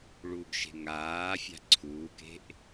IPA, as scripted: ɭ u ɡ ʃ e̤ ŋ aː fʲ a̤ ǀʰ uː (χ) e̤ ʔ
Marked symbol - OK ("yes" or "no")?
no